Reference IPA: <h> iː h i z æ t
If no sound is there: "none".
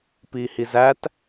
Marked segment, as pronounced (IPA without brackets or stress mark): p